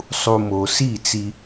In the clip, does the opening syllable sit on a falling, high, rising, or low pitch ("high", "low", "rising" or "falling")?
low